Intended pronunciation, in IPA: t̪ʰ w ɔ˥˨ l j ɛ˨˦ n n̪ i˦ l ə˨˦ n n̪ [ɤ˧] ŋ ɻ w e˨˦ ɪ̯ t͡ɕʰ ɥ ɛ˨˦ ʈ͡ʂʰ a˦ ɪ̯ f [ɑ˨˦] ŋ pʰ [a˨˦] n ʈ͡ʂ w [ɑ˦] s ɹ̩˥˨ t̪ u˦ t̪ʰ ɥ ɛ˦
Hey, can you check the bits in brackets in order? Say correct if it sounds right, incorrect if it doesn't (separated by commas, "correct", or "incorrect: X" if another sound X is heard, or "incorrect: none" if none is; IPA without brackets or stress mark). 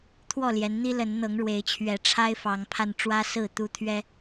incorrect: ɤ˨˦, correct, incorrect: a˧, incorrect: ä˦